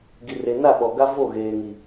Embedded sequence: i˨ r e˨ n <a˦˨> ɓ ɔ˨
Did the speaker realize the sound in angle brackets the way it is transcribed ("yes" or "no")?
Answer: yes